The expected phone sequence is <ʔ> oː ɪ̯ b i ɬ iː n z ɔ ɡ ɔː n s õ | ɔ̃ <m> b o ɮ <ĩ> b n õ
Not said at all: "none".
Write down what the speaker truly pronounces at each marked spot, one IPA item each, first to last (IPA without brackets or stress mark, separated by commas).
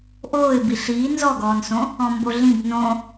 ʔ, m, ĩ